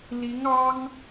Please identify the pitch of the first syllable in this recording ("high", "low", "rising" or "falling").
rising